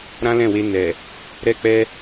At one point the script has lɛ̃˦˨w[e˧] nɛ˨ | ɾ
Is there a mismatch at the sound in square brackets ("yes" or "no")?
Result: no